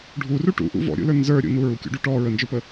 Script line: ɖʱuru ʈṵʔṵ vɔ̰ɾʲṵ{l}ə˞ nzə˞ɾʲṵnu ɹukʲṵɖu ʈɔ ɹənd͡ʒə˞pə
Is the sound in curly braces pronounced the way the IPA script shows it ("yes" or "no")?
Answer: yes